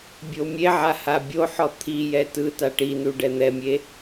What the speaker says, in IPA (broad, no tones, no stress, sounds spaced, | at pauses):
bʲ o mʲ e ʕ a h a bʲ o ħ ɔ t̪ʰ i j ɛ t ɯ t a ʈ i n u ɖ ɛ n̪ ɛ mʲ e